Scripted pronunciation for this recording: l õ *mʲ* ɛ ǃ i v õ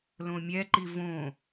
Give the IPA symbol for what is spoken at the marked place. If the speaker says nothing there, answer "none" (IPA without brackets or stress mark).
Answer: mʲ